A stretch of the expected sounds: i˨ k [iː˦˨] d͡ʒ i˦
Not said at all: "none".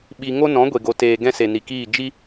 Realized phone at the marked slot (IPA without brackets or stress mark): iː˦˨